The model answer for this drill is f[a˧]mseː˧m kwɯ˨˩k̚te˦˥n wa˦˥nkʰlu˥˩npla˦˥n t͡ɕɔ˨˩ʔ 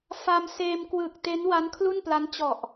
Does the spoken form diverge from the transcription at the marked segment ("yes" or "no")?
no